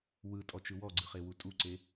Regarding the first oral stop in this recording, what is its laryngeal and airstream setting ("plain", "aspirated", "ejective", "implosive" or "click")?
ejective